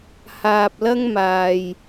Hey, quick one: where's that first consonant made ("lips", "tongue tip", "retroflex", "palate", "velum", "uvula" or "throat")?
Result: throat